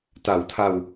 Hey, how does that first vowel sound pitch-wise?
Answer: low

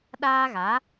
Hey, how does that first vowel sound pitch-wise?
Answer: high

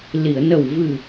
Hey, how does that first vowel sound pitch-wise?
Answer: low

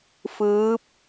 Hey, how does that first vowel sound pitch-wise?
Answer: rising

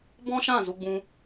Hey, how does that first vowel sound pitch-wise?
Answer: high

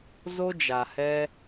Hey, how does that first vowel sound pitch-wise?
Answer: high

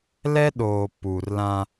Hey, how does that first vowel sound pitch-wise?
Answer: high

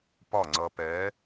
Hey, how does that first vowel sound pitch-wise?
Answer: falling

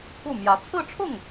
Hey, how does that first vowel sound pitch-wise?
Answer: falling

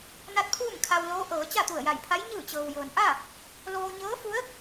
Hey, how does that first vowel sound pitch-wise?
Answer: rising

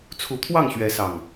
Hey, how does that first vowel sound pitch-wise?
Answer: rising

